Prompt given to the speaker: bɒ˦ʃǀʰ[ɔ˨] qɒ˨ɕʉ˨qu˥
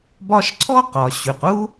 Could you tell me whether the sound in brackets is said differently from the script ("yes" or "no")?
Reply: yes